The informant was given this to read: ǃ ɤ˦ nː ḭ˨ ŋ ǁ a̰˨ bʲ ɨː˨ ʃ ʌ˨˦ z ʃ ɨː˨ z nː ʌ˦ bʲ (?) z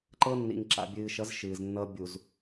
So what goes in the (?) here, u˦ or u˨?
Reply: u˨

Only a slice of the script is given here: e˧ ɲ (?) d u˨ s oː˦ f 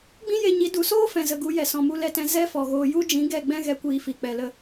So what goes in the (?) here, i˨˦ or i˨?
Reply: i˨˦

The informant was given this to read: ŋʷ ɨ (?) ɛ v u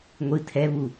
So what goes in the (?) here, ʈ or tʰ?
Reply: tʰ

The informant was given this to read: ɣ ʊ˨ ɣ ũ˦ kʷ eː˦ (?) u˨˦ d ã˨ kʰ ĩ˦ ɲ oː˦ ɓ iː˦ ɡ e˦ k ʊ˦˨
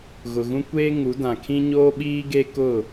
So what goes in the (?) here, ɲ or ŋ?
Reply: ŋ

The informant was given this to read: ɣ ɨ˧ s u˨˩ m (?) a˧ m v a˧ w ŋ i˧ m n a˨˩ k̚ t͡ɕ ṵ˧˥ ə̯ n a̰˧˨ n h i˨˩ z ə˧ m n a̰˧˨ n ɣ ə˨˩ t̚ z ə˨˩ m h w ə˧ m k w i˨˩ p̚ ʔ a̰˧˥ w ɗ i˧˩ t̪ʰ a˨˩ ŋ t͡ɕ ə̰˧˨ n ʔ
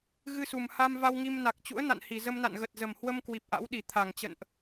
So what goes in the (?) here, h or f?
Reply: h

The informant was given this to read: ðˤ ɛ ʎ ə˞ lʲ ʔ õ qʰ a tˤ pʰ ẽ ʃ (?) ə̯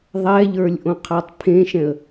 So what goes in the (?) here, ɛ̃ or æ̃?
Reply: ɛ̃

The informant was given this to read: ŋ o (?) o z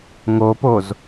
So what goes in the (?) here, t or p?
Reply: p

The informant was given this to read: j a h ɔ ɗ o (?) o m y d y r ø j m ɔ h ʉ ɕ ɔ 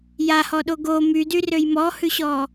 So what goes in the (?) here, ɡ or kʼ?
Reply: ɡ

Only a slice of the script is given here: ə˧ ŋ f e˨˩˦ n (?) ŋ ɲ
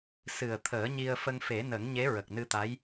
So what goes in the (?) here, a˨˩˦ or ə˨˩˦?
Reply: ə˨˩˦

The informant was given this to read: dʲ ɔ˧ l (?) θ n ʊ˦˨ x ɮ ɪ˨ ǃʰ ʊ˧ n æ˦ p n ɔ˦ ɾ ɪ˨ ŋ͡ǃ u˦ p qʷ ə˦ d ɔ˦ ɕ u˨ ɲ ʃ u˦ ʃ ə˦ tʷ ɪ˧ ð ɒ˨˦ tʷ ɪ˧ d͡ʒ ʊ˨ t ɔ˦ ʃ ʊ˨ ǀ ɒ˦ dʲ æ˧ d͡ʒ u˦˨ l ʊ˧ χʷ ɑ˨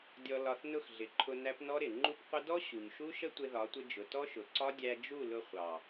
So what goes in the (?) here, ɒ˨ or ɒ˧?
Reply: ɒ˧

